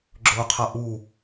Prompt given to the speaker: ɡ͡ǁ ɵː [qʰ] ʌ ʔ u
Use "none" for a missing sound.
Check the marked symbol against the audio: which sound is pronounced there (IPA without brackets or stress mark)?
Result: qʰ